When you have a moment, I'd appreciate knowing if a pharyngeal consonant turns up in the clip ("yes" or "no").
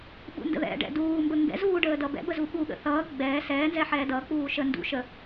yes